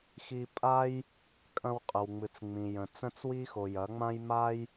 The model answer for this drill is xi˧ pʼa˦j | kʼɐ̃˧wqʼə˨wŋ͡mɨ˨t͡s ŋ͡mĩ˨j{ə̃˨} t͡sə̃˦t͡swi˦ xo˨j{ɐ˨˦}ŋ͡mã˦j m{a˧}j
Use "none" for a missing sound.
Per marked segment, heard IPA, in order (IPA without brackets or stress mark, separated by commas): ə̃˨, ɐ˨˦, a˦